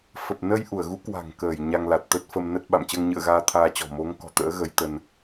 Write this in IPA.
fə˨˩p̚ nə˧jʔu˧˩ə̯ɣu˨˦ kwa̤˨˩ŋkəː˧˩j ɲa˧ŋla˨˩t̚ t̪ə˦˥t̚fə˧mnə˦˥t̚ ɓa̰˧˨m t͡ɕəː˧ŋɲɨ̰˧˨ə̯ɣaː˧ t̪ʰaː˧t͡ɕɔ̤˨˩ mo˨˦ŋkɔ̤˨˩t̪ə̰ː˧˥ ɣə˨˦jt̪ə˧n

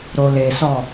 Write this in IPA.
ɾolesɔ

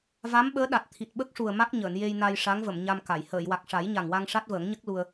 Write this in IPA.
va˧˥mɓəː˧˥ɗa˨˩t̚ t̪ʰi˨˩t̚ɓə˦˥k̚ʂu˨˩ə̯ ma˦˥k̚ɲəː˨˩˨n je˧jna˧jʂa˧˥ŋvə˨˩˨m ɲa˧mka˨˩˨j həː˨˩˨jwa˨˩k̚ ʂa˨˩˦jɲa˨˩ŋwa˧ŋ ʂa˦˥t̚vəː˨˩˦ŋɲə˦˥k̚ lu˧ə̯

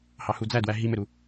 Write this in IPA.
hɑhud͡zædwæ ɦimɘɾu

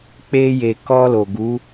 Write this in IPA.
k͡pe˧je˨ kɔ˧lo˨ɡu˨˦

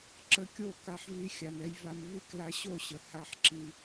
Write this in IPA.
ǁə˧kʲo˦˨ ka˧ħvi˧xʲa˨nɛ˧j va˧m vi˦kla˧ ɕo˦˨ɕə˨ ha˦˨ħǁi˧

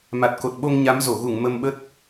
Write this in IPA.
ma˨˩t̚ko˨˩t̚ɓo˧ŋ ɲa˨˦mzo˧˩ɣu˧˩ŋ mə˧mɓə˦˥t̚

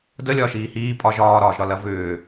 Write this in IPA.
dəlʲɒːʃiː hiː pʼɒʒ ɒːɾɒːʒɾɒlɐ vʏː

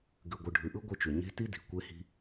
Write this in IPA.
ɡʉ˨ɡʷɯ˨ɖʱʉ˨ʔɯ˦ ɡʷɯ˦t͡ʃu˨ ɲe̤˦ ti˦di̤˨ kʷe˦hi̤˦

